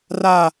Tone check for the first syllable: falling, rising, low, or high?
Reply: falling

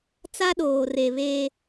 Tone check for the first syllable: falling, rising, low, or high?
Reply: high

